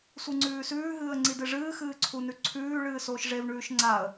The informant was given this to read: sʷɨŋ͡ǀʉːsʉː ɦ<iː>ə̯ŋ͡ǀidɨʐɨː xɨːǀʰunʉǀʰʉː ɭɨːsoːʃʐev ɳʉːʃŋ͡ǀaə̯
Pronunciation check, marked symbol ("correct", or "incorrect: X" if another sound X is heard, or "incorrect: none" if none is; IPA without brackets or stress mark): incorrect: ɨː